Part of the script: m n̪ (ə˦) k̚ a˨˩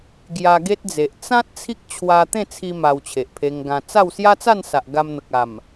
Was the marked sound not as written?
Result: yes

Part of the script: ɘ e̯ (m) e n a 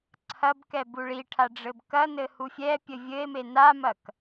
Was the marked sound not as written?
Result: no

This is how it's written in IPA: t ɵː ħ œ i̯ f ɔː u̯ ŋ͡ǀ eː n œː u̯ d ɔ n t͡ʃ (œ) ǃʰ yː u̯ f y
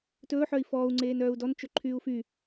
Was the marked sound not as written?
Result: yes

